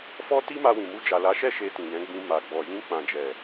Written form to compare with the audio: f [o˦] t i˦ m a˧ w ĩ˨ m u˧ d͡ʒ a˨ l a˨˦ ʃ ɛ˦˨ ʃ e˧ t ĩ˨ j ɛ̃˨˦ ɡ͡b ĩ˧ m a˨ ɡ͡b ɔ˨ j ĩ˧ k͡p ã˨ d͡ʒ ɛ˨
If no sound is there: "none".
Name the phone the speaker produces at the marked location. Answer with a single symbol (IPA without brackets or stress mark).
ɔ˦